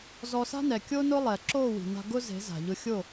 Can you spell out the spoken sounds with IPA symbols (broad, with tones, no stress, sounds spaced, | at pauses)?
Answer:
z ɔ˧ s a̤˦ n ɛ˨ kʲ o˦ n ʊ˦ lˠ ɛ˨ ǁ o˦˨ w i̤˨ n a̤˧ ɡ ʊ˦ z e̤˨˦ z a̤˨ ʎ ʊ˧ xʲ o˦˨